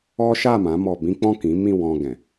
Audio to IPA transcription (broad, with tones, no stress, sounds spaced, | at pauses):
ɔ˦ ʃ a˦˨ m ã˨˦ m ɔ˧ b ĩ˦ k͡p ɔ̃˦˨ k ĩ˨˦ m ĩ˦˨ w ɔ̃˧ ɡ ɛ̃˨